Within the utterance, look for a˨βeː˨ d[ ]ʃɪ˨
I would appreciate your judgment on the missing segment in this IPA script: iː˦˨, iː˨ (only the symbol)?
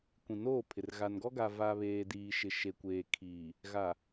iː˨